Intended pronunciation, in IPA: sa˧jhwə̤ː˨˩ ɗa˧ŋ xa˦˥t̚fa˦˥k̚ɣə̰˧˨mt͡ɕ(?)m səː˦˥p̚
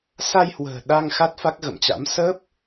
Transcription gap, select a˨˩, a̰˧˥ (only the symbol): a̰˧˥